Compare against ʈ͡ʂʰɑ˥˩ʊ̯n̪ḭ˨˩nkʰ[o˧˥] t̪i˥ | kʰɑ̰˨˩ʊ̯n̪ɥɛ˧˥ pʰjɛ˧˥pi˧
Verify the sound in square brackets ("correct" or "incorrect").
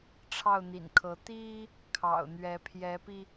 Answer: incorrect